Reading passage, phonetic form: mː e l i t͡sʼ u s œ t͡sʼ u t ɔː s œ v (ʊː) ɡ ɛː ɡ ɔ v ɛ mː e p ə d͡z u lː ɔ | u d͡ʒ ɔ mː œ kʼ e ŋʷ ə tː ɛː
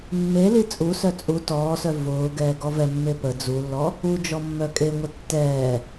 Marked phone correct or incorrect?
correct